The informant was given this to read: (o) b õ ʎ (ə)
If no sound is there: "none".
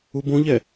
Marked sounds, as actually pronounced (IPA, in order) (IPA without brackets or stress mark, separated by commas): u, ɛ